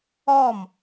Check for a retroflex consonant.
absent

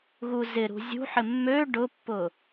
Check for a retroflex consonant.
present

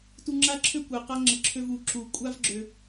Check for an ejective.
present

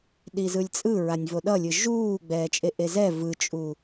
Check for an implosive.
present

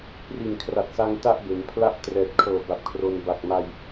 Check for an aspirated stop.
present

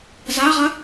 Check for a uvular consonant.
present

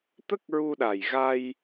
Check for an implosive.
present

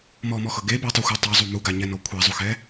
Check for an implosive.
absent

